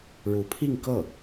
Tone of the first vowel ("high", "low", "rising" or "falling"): rising